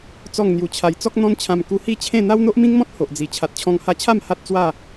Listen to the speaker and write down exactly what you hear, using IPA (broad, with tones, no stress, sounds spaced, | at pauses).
t͡s ɔ˥˧ ŋ n̪ j u˧ t͡ɕʰ a˧ j t͡s ɔ˦ k̚ n̪ ɔ̃˦ n t͡ɕʰ ã˧ m k u˧ h i˥˧ t͡ɕʰ ẽ˥˧ n̪ a˦ w n̪ o˦ ʔ m ĩ˦ ŋ m ɔ̃˦ t̚ h o˨ ʔ d͡z i˨˩ t͡ɕʰ a˨ t̚ t͡ɕʰ ɔ̃˧ ŋ h a˧ t͡ɕʰ a˥˧ m h a˦ t̚ t͡s w a˥˧